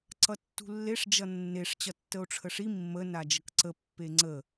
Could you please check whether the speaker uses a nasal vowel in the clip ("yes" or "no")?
no